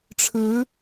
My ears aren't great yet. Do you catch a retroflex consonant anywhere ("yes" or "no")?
yes